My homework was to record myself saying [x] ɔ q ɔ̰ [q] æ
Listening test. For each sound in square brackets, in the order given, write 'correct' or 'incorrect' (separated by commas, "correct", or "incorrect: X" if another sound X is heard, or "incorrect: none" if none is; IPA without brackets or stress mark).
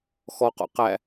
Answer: correct, correct